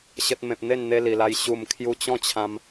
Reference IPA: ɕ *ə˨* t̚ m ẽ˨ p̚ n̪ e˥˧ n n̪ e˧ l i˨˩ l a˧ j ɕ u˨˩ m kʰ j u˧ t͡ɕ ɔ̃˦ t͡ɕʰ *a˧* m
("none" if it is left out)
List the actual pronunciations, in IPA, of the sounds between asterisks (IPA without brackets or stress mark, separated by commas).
ə˨, ã˧